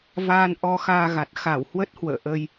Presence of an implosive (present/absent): absent